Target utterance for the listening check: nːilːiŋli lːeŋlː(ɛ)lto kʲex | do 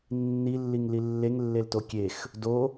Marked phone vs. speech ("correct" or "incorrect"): incorrect